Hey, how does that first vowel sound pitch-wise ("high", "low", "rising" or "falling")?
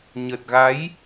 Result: low